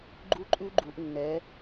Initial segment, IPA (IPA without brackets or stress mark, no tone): ɡ͡ǃ